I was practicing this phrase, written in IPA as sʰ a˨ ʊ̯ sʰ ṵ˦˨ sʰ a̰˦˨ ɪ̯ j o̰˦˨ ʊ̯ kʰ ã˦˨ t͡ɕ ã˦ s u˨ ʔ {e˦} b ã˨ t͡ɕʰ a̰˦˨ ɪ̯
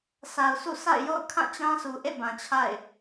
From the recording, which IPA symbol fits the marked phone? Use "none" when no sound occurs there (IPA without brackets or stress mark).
ḛ˦˨